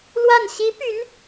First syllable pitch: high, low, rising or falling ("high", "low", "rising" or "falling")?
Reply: falling